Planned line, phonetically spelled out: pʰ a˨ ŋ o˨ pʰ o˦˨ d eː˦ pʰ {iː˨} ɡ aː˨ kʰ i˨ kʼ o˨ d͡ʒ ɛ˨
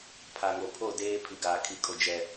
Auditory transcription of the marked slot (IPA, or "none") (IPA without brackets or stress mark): i˨